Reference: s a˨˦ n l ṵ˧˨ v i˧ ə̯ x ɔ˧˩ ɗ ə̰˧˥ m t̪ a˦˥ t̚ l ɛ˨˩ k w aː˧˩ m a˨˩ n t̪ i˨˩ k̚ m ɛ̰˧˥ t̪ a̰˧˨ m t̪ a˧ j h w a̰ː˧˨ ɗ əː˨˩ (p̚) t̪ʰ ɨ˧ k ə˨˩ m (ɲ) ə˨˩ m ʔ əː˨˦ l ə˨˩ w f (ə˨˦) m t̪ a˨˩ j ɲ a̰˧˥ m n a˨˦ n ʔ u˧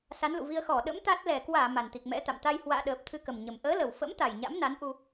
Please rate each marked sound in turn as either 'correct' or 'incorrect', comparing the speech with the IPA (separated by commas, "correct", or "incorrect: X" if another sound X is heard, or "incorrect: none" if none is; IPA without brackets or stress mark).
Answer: correct, correct, incorrect: ə̰˧˥